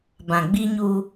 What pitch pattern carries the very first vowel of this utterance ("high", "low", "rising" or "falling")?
low